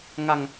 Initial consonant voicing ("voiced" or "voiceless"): voiced